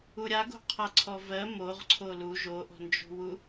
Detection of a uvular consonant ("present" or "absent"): present